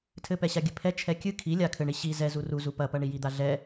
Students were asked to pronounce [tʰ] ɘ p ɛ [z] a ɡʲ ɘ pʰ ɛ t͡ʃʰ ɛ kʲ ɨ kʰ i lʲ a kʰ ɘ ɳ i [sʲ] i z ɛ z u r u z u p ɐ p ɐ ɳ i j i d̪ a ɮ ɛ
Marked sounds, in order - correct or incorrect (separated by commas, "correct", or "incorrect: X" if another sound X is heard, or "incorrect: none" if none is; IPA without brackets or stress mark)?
correct, incorrect: ɕ, incorrect: ɕ